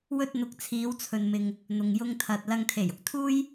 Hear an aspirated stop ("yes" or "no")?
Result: yes